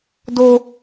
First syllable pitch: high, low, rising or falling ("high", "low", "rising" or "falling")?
high